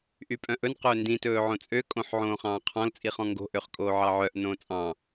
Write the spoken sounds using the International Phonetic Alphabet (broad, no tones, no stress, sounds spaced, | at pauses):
ʔ y pʼ œ̃ ʔ ɵ n q ɵː n d ĩ t ɵː ʕ õ t͡sʼ ø kʼ õ ħ ʕ õː χ ɑ̃ː qʰ ɔ̃ l t͡sʼ i χ ɔ̃ ŋ ɡ o̤ ʔ ø χ kʼ oː ʕ ɑ ʕ œ ʔ n õː t͡sʼ ɑ̃